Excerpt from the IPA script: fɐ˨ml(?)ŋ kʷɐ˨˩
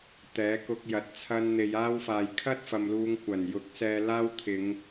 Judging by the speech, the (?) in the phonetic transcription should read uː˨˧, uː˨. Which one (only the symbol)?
uː˨˧